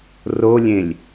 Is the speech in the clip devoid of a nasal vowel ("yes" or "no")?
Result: no